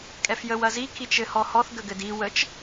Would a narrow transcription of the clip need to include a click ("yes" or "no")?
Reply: no